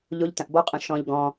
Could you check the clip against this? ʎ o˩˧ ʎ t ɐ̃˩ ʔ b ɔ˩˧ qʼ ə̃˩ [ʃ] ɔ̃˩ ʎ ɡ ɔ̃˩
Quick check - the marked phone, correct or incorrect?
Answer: correct